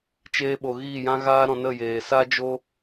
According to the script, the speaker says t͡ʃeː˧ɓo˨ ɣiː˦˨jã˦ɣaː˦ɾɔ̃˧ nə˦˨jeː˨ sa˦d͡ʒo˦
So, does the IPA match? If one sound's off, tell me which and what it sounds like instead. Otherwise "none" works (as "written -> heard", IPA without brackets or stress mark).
none